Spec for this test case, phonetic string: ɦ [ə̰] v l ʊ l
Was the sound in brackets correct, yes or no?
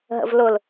yes